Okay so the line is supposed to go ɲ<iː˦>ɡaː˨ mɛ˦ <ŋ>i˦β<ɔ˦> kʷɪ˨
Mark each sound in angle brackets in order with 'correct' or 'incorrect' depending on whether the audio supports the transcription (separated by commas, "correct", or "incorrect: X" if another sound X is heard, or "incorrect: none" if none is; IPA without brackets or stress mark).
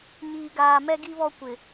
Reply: incorrect: iː˨, incorrect: ɡ, correct